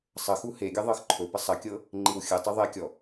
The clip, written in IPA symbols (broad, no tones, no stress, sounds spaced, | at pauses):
sˤ ə x u h e ɡʲ ə ðˤ ɤ x ǃʰ ɵ p ə sˤ ɐ kʲ ɤ | ŋ͡ǃ i w xʲ ɘ tˤ ɵ ðˤ e kʲ ɔ